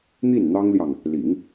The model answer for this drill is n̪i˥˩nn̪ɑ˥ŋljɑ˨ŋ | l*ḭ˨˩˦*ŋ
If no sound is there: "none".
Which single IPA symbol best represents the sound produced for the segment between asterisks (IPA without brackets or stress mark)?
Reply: ḭ˨˩˦